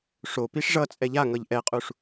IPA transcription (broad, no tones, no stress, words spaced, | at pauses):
ʂo piʂʐʌt͡sʼɛ ʎaŋʌʎ ʔɛqʼuʂ